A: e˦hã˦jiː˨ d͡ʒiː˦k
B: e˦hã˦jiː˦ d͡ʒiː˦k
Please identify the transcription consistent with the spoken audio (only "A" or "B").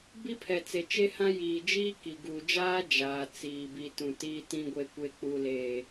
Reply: A